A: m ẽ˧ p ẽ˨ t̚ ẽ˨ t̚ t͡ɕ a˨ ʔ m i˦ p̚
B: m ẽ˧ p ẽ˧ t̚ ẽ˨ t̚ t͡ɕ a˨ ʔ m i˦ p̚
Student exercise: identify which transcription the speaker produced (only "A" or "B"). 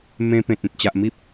A